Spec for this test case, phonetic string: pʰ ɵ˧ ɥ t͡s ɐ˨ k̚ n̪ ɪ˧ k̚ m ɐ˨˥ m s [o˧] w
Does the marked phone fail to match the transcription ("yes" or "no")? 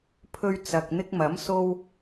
no